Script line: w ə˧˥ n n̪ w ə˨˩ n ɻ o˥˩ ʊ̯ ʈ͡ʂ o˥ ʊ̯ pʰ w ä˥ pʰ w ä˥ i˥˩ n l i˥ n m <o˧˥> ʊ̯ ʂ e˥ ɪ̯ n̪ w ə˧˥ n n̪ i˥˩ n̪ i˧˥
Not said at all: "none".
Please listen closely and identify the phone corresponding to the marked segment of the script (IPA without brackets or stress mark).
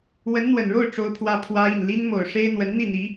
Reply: o˨˩